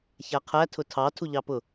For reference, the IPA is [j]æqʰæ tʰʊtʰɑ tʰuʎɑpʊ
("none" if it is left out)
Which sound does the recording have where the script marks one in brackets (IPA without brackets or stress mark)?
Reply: ç